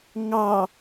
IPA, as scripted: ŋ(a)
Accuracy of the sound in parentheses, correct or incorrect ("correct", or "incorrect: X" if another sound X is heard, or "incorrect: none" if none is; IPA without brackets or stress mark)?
incorrect: ɑ